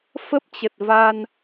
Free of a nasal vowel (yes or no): yes